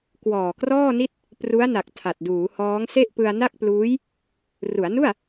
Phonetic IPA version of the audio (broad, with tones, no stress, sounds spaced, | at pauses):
k w ɔː˨˩ k r ɔː˥˩ n i˥˩ t̚ | p r u˦˥ a̯ n a˨˩ k̚ tʰ a˨˩ t̚ d uː˩˦ h ɔː˦˥ ŋ s e˥˩ ʔ p ɯ˧ a̯ n a˥˩ k̚ p l uː˦˥ j | r u˩˦ a̯ n u˥˩ a̯